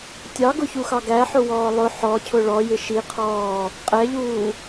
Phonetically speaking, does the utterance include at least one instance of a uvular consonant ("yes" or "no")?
yes